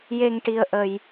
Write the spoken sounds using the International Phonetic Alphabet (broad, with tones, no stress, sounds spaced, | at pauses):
j e˧ ŋ ʈ i˧ ə̯ ʔ ə˧ j